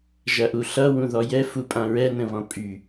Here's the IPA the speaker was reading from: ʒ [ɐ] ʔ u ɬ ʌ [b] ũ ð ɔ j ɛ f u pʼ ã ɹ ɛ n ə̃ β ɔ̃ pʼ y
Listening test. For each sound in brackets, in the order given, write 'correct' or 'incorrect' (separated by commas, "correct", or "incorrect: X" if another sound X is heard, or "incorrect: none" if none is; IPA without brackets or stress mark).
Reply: correct, incorrect: w